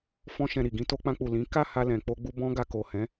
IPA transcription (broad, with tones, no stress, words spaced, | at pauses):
fɔ̃˦ʃɛ̃˧ɾi˨ ɡĩ˧to˧k͡pã˧k͡pu˨ lĩ˨˦ ka˦˨ha˧ lɛ̃˨k͡po˧ɡ͡bu˧ bɔ̃˦ɡa˧ ko˨hɛ̃˨˦